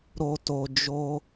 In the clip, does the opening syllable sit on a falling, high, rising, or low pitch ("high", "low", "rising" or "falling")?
low